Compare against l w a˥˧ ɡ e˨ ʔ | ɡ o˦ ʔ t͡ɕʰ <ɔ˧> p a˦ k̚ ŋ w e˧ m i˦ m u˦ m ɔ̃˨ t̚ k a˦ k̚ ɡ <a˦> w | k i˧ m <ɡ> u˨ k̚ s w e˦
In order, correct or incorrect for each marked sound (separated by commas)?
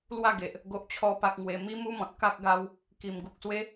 incorrect, correct, correct